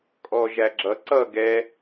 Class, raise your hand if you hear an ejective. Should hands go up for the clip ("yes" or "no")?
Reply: yes